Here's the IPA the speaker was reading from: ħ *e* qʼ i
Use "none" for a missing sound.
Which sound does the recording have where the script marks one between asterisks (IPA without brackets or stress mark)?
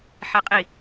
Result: e